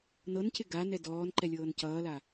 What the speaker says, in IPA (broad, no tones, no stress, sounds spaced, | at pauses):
n ɤ n c ɪ ɡ a n ɛ d ɔː n ǃ ɛ lʲ ɤː n c ʌː l a